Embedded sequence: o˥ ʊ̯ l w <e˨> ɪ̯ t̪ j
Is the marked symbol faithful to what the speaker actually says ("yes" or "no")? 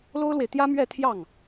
yes